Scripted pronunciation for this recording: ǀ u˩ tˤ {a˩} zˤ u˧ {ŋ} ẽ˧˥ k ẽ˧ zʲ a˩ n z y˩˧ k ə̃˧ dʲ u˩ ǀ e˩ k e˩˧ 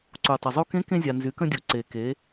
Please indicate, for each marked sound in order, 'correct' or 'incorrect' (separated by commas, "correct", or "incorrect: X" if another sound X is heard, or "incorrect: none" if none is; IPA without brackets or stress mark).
incorrect: ə˩, incorrect: k